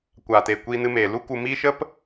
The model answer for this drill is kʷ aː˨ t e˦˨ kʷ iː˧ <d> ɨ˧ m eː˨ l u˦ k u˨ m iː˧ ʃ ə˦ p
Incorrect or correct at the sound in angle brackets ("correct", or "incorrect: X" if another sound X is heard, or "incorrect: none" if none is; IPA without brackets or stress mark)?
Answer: incorrect: n